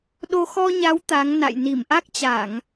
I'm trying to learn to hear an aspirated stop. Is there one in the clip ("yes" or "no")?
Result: no